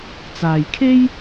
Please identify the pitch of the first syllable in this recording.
low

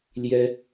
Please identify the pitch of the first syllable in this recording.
high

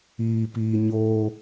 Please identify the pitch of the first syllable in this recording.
low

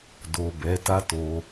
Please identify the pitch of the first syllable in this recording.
low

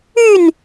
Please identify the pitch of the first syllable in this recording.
falling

